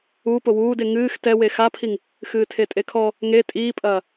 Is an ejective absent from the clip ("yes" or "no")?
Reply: no